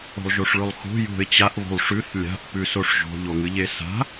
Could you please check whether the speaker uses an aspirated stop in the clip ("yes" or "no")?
no